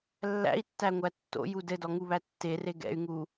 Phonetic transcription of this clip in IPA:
lːæ̰i̯tːæŋʷæ tːo̰ju dɘdɔŋuβæ tːere ɡɛ̰y̯ŋu

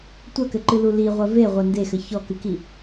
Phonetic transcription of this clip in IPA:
tʷɐkɘǃɨlu liʁʷɐ veʁʷɐ ndexɘ çɔkɨki

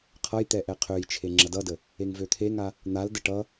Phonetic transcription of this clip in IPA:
qʰʌj t̪ɛʔɛqʰøjt͡ʃʰe ŋ͡ǁɐdʌdə | eŋvøt̪ʰeŋa | n̪aldə ʈʌ

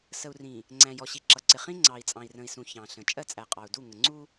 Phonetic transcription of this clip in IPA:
sə˨u̯rĩ˨ | ŋ͡ǀæ̃˨jɔ˨ ɕi˨ǁʌ˨ǀɪ˨ χĩ˦ ŋ͡ǀɑ˨i̯t͡sʼɑ̃˨i̯rə̃˨i̯sũ˨ çɑ̃˨ɬə̃˨ t͡ʃʼɜ˦t͡sʼæ˨qʼɑ˨u̯du˦˨ ŋə˨ŋ͡ǀu˦

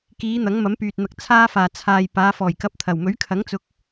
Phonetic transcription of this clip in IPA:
kiː˨˧ n̪ɐ˨˥ŋmɐ˨˥mpyː˨t̚n̪ɐ˧k̚ t͡sʰaː˧faː˨˩ t͡sʰaː˨jpaː˨˧ fɔː˨˩jkɐ˨˥p̚t̪ʰɐ˨˩wmɵ˨˥ɥ kʰɐ˨˥ŋt͡sʊ˧k̚

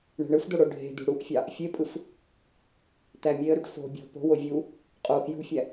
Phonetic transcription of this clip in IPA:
ɳe̤ɳɯfd̪o ɽoɖʱe̤d̪ṳ ɽuʔfʲɑ | fʲepʼɯf | t̪æmʲeə̯ɾyʈ fo̤ bʲo̤ po̤wo vʲu | qʼo kjṳfʲæ

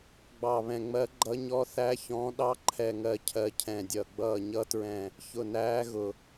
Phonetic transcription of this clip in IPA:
ɡ͡bɑ˧˩βɛ̃˧˩ŋ͡mɜ˧˥ɡ͡ǃʌ˧˥ ɲɔ˧˥θæ˧˥ çɔ̃˧˥ ɗɑ˧˥ǃʰɛ˧˩ŋɜ˧˩ cʰɜ˧˩ cʰɛ̃˧˩dʲʌ˧˩ ɡ͡bʌː˧˩ɲʌ˧˥tɹɛ̃˧˩ | çʊ˧˩næː˧˥ɣʊ˧˩

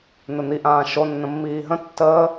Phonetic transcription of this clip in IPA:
n̪ɘn̪iʔãː ʃonːə̃mːiː ɦə̃ tːəː

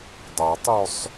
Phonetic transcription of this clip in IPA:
dˤatˤosˤ

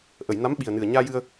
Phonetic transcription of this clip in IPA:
ʔə˨˩˨jna˧˥mɓi˨˩ə̯ nɨ˨˩ə̯ɲaː˧jɨ˧ə̯

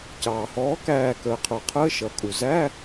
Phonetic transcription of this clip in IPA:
cɑː˩hɔː˩˥ kæː˧˩kəː˩qʰə˞˩qʰəː˧˥˧ ʃʌ˩kʼu˩ zæ˧˥˧

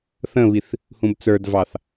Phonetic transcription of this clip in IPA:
θə̃βiθ | hũbt͡sə˞dvɑθ

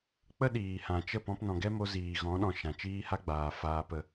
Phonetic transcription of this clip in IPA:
k͡pə˦ɗiː˨hã˨t͡ʃə˦˨ pɔ̃˧pnɔ̃˨ɡɛ˦mo˧ ziː˨ɣɔ̃˨˦ɗɔ̃˨ ʃã˨t͡ʃiː˦ha˦ɡ͡baː˨ faː˧pə˧

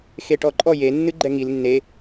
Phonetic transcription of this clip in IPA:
xeʈɔǃʼɔ je nːɨɡ͡ǃɛŋil nːe

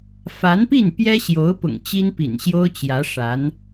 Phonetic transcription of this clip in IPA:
fa˧˥npi˥˩n pjɛ˥ɕjo˧˥ʊ̯pʊ̰˨˩ŋ t͡ɕi˥npḭ˨˩nɕjo˥ʊ̯t͡ɕjä˧˥ ʂa˧˥n

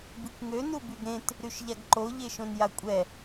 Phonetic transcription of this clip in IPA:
bikʷŋø nubyɡɾẽt | ɾyʃʎaɡǃo ʎeʃõnjakʷʼɛ

